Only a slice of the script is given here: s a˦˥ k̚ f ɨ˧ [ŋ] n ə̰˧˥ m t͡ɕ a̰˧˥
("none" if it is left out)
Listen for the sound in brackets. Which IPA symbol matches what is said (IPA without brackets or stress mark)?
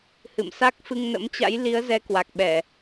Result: ŋ